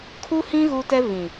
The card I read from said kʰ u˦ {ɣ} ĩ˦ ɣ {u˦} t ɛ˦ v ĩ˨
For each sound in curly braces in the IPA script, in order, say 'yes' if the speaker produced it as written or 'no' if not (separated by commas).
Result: no, yes